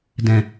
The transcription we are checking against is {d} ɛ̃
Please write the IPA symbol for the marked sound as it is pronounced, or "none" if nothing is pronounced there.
d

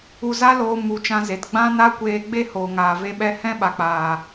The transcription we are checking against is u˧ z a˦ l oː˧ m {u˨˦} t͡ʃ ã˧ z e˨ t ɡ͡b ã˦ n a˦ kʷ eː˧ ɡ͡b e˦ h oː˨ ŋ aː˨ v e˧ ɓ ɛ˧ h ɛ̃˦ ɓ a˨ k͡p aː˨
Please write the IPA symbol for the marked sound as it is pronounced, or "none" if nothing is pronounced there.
u˨˦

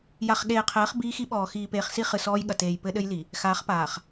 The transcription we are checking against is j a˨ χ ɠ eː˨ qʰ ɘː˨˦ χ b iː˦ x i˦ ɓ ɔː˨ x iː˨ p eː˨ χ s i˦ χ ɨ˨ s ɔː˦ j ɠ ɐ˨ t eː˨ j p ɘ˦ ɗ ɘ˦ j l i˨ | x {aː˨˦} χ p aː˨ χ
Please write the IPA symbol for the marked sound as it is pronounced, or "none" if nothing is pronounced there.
aː˨˦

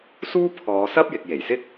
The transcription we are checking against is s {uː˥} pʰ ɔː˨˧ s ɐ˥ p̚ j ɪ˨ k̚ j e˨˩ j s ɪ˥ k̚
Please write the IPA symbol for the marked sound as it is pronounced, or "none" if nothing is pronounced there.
uː˥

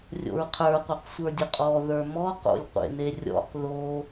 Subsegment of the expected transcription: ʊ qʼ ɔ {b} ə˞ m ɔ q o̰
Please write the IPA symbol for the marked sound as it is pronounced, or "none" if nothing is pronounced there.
ð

